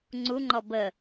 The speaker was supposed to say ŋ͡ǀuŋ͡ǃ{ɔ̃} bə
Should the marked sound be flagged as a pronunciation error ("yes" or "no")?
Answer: yes